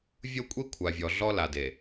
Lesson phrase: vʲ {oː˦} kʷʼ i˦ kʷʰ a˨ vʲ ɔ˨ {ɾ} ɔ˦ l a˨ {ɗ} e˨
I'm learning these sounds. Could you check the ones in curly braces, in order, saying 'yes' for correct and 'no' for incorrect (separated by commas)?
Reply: no, no, no